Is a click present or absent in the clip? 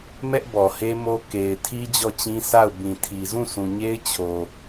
absent